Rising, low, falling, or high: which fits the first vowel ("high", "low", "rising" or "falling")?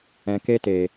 low